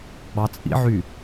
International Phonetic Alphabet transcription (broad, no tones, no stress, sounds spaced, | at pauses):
ɡ͡b ɑ t͡sʼ ḭ ʕ y